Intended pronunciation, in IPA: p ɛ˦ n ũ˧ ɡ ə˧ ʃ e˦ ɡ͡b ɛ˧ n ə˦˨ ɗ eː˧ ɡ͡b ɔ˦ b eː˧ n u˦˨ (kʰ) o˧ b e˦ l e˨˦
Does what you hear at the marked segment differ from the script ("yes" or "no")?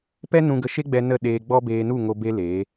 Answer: yes